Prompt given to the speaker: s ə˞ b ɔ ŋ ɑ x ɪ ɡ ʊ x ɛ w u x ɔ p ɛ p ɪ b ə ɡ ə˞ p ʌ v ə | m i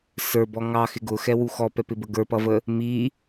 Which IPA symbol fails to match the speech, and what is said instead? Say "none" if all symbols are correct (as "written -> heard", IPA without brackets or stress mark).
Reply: none